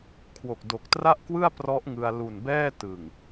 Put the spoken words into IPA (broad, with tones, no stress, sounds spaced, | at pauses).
kʰ w o˨˩ k̚ d o˨˩ k̚ t r a˥˩ ʔ k w ɯ˥˩ a̯ p r ɔ˦˥ ʔ ŋ ɯ˧ a̯ l u˨˩ n b ɛː˥˩ t ɯ˨˩ ŋ